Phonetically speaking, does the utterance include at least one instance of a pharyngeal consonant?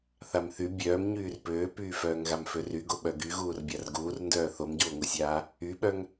no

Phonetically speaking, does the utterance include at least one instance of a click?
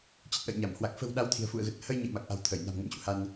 no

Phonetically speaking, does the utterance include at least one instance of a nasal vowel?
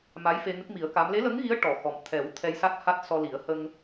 no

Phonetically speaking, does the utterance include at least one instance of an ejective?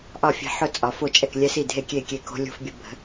yes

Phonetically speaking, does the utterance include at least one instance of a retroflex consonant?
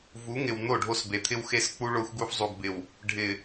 yes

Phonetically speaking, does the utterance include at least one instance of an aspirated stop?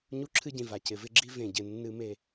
yes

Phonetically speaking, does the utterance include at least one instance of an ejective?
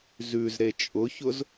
yes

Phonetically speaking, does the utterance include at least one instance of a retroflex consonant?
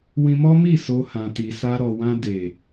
no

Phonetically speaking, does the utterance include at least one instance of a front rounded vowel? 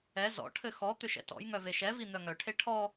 yes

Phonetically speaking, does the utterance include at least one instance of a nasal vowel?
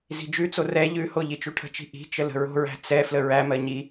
no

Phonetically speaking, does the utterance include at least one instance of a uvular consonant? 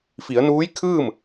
no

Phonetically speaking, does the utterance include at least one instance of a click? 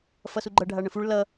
yes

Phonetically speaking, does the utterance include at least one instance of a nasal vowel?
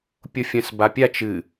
yes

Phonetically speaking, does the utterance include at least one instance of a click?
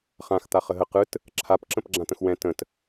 yes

